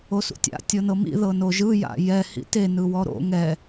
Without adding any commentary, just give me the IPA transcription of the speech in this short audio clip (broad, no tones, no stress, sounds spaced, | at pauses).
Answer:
o s ṵ tʲ a̰ tʲ ɤ n ɤ m ḭ ð ɤ n o ʒ ɯ j a̰ j ɛ h ḭ t e n ɯ w ɔ ɾ o̰ ŋ ɛ